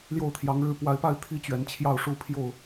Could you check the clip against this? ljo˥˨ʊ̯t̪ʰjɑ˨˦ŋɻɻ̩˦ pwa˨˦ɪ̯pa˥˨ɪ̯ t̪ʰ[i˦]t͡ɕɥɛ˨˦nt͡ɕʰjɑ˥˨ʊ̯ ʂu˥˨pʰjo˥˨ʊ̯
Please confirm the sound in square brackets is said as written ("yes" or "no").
yes